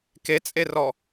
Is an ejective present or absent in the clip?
present